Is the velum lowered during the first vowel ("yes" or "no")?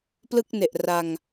no